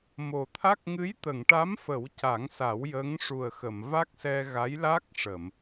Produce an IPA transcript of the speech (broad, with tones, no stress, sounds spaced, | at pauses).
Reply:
m o˨˩ t̪ʰ a˦˥ k̚ ŋ ɨ˧˥ j t̪ ə˨˩˨ ŋ ʈ a˧˥ m f ə˨˩˦ w c a˨˩˦ ŋ s a˨˩˦ w j əː˧˥ ŋ ʂ u˨˩ ə̯ x ə˨˩˨ m v a˦˥ k̚ s ɛ˧ ɣ a˧˥ j l a˦˥ k̚ ʂ ə˨˩˨ m